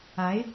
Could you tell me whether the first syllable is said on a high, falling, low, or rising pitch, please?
rising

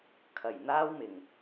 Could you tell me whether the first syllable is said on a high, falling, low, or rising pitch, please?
low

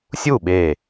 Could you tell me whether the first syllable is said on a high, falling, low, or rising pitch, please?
falling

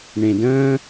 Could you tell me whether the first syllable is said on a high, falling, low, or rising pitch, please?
low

